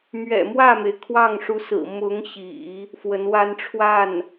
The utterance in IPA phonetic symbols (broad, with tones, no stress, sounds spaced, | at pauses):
m ɥ ɛ̰˨˩ m w ä˥˩ m e˩ ɪ̯ kʰ w ɑ˥˩ ŋ ʂ u˧˥ s ɹ̩˨˩ m ʊ˧˥ ŋ ɕ ḭ˨˩˦ | f w ə˧˥ n w a˥ n ʈ͡ʂʰ w a˥˩ n